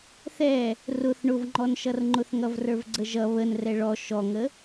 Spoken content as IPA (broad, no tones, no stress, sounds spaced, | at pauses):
θ ɛ | r ʊ θ ɳ ʊ v ŋ͡ǃ ɔ n ʃ ʌ r ŋ͡ǃ ʊ θ ŋ ʌ v r ə˞ v ɡ͡ǀ ə ʒ ʌ β ə n r ɛ ɭ ɔ ʃ ɔ ŋ ə